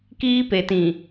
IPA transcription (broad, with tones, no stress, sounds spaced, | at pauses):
k iː˦ p e˨ t ĩ˨